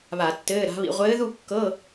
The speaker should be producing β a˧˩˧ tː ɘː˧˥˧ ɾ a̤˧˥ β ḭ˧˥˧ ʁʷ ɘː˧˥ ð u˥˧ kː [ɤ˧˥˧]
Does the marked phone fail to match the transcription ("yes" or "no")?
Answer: no